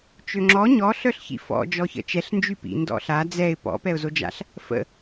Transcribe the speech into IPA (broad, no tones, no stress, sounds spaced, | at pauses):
t͡ʃ ø ŋ͡ǁ ɔ ɲ ɔ ɬ œ ɬ ç ḭ f ɔ̰ d͡ʒ ɔ ç ə̰ t͡ʃ ɛ ɬ n d͡ʒ y p ḭ n d ɔ̰ ɬ a d͡z ɛ ɪ̯ p ɔ̰ p ɛ ʊ̯ z o d͡ʒ a̰ ɬ | f ə̰